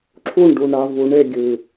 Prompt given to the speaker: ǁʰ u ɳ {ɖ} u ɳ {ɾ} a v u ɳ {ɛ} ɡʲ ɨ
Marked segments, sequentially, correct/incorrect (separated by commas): correct, correct, incorrect